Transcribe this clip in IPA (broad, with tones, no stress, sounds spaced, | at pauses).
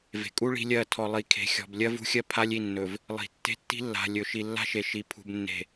v e̤˨ kʼ u˦ ɭ i̤˦ lʲ ɜ˦˨ tʰ ɔ˨ lˠ i˨ kʰ e̤˨ xʲ ɔ̤˨ b lʲ ɜ˦ v ṳ˦ xʲ ɜ˦ pʰ a˦ lʲ i˦˨ nː ɵ˨ v | lˠ i̤˨ tː e̤˦ tː i̤˦ lː a̤˨ lʲ ɵ˨ ʃ i˨ lː a̤˦ ʃ e˨ ʃ i˨ pʰ ṳ˨ b nː e̤˨